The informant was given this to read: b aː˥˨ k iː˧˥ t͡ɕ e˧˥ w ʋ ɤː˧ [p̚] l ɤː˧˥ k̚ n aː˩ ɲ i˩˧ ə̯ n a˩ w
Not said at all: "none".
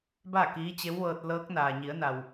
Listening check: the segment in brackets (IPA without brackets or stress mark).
t̚